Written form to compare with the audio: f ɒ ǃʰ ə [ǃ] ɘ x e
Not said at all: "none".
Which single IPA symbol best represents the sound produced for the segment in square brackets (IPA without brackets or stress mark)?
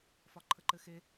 ǃ